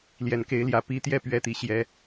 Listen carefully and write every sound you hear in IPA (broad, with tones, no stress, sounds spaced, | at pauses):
l j ɛ˨˩ n k e˧˥ ɪ̯ l j ä˨˩ p i˧˥ t̪ j ɛ˥˩ p ɥ ɛ˥ t̪ i˥˩ ɕ j ɛ˥